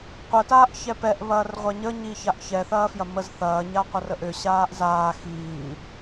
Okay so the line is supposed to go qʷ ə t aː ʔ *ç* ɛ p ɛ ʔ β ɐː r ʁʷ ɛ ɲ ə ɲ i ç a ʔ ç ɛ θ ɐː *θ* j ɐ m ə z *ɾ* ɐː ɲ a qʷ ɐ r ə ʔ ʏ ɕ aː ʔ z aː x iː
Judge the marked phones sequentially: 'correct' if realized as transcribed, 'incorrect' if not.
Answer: correct, incorrect: f, incorrect: θ

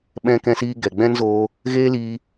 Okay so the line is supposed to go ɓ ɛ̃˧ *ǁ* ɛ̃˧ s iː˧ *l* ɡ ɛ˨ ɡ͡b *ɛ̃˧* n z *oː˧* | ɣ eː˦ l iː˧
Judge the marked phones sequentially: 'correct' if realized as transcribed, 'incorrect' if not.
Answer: incorrect: k, incorrect: none, incorrect: ɛ̃˦, correct

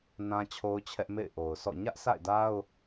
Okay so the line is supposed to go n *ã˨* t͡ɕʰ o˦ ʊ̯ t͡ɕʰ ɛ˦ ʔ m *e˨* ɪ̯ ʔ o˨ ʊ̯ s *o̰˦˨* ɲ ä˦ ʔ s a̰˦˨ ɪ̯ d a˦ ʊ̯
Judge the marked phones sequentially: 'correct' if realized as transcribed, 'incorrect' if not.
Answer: incorrect: ã˦, incorrect: ḛ˦˨, incorrect: ɔ̰˦˨

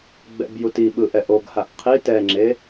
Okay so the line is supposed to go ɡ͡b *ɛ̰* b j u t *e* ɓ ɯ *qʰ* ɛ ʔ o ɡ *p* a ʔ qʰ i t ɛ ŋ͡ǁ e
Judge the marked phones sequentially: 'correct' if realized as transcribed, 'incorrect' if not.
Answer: correct, incorrect: i, incorrect: ʔ, incorrect: h

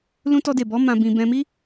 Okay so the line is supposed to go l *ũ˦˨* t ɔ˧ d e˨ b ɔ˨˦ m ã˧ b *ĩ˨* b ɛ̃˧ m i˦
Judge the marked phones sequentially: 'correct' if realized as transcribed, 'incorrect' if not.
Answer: incorrect: ũ˧, incorrect: ĩ˧

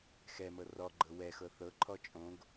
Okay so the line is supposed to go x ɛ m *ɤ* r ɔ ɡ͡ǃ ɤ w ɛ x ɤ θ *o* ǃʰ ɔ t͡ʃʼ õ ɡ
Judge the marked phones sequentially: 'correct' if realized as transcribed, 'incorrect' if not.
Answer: correct, incorrect: ɤ

